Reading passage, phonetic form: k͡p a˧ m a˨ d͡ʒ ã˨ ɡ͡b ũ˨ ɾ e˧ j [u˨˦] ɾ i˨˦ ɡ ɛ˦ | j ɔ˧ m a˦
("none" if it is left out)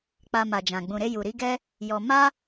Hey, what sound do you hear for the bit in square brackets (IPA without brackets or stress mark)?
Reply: u˨